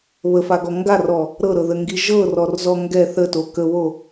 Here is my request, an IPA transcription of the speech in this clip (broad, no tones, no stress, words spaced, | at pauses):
βəfaɡɔ ŋɡarɔ | ɾɤɾɤðəŋɡi ʒɤrɔrzɔ ŋɡɛ θəto kəβo